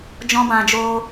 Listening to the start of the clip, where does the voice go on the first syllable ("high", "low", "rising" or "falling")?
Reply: high